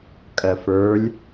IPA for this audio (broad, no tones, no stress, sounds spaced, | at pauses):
kʼ ɜ f ə˞ lʲ